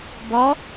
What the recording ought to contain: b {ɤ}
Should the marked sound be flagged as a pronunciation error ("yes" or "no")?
yes